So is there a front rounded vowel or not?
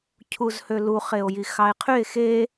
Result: yes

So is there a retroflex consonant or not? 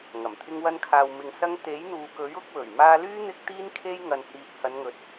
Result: no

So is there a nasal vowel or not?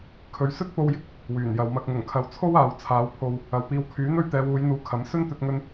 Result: no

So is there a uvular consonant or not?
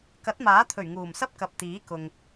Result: no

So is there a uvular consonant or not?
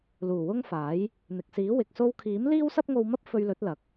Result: no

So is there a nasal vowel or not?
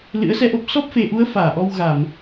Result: no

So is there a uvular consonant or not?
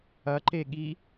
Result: no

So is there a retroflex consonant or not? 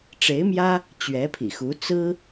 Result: yes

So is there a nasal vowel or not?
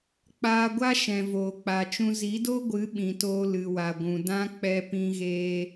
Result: yes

